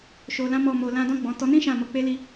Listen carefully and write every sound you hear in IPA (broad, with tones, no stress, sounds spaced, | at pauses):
ʃ o˧ l ã˦ m ɔ˦˨ m o˧ l ã˧ d ɔ̃˧ ɡ͡b ɔ̃˨ t ɔ˧ n ĩ˦ ʃ ã˦˨ m o˧ k͡p e˦ l i˦